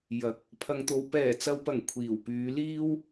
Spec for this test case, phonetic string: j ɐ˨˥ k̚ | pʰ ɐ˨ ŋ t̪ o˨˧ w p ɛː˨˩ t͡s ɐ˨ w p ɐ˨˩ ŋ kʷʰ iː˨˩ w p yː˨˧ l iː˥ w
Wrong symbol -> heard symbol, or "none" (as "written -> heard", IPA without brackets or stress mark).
none